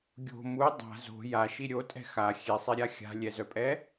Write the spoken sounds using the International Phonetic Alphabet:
ɡʲ o̤ m u dˤ a̤ z o̤ j a ʃ i ɾʲ o tʼ ɛ̤ x a xʲ e sˤ e ɾʲ a xʲ a̤ lʲ ɛ z œ pʼ ɛ

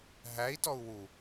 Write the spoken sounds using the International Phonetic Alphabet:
ɦ æ i̯ t ɔ u̯ w u

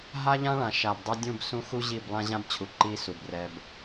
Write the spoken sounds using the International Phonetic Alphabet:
ɦ a˦ ʎ ã˦ ɭ ã˨ ʃ a˨ b dˤ ɛ˦ dʲ ũ˦˨ b s ũ˦ x u˦ ʑ i˦˨ b lˠ ã˦ ʑ ã˦ b t͡ɕʰ u˨ ǃ i˦ s u˨ b r ɛ˦ b

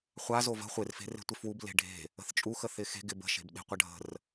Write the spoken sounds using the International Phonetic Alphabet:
χʷ a z o v ə̤ χʷ ɪ r f e̤ r e̤ tʷ ɪ f w u b l e̤ ɖʱ e̤ | ə̤ θ t͡ʃʼ u x ə θ ɪ x e̤ ɡ ɪ b ə̤ ʃ e̤ b ɗ e̤ qʷ ɐ ɖʱ ə̤ r

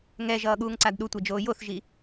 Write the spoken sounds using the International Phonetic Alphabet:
ŋ ɛ ʒ ʌː ɠ uː ŋ ǀ a d ɗ u tʷ ɛ d͡ʒ oː j o θ ʒ i

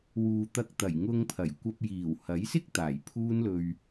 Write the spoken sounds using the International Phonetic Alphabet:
w uː˨ t̪ ɐ˧ k̚ t̪ ɐ˨˩ j ŋ ʊ˧ ŋ pʰ ɐ˨˩ j kʷ ɐ˧ p̚ j iː˨˩ w h ɐ˨˥ j s ɪ˥ k̚ t̪ aː˨˩ j pʰ uː˥ n l ɵ˧ ɥ

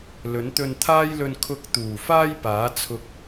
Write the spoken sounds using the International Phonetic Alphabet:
l ɵ˨˥ n t̪ ɵ˧ n t̪ʰ aː˥ j l ɵ˧ n kʰ ʊ˧ k̚ t̪ uː˨˩ f aː˥ j p aː˨˥ t͡sʰ ʊ˥ k̚

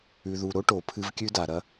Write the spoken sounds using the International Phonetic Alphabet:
ʉ˨ ð u˨ ɾ o˦ ʈ o˨ pʰ ɨ˦ v kʲ ʉ˦ d a˨ ɾ ɐ˦

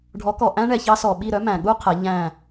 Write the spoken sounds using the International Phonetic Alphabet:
ɖʱ ɔ˨˦ k ɔ˨ ʔ æ̃˦ ɳ ɛ˨ ç ɑ˦ s ɔ˨ ɓ i˦˨ ɾ œ˦ m æ̃˨ ɠ u˦ qʰ ɛ˨˦ ʎ æ̃˦˨

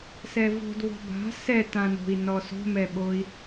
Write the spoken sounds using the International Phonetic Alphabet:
s ɛ v o̤ d β ɔ̤ b a̤ s ɛ t ã n o̤ i̯ n ɔ s o̤ m ɛ ɓ o i̯

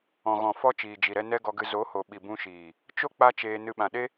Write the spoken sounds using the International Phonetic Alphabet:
ɔ̃˨ ɣ ɔ̃˨ f ɔ˧ t͡ʃ iː˨ d͡ʒ i˨ ɾ ɛ˧ n ɛ˦ ɡ ɔ˧ ɡ ɨ˧ z o˨˦ h o˨ ɓ i˨ b ũ˧ ʃ iː˨ | t͡ʃ o˦ k͡p a˦ t͡ʃ eː˧ n ɨ˧ ɓ ã˨ ɗ e˦

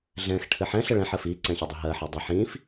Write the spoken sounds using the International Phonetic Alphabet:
ɮ ɛ̃ x ʈʰ ɘ ħ ɛ̃ ɬ ə ɭ ɛ̃ ħ ɜ f i ǀ ɛ̃ ɕ ɘ dˤ ɘ ɦ ɜ ħ ɘ dˤ ə ħ ĩ f

